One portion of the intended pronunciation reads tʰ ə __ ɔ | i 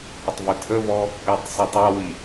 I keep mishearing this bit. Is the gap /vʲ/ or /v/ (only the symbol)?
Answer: v